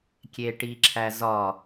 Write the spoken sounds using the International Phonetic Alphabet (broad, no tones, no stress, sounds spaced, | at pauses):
kʲ e ʈ i ǁʰ æ z ɒ